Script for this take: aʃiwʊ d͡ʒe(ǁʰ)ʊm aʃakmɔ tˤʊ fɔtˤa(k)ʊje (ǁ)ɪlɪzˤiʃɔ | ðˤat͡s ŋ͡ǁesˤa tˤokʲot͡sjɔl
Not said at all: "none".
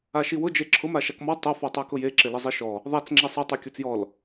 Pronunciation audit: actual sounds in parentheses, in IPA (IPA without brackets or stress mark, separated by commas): ǁʰ, k, ǁ